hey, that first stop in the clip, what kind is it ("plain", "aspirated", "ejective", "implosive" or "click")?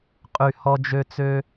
ejective